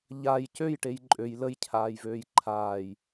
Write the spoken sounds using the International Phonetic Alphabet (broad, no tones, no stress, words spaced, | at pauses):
ʎaj cøjʈej ǃʼøj ləjcʰaːjvøːj ǃʰaːj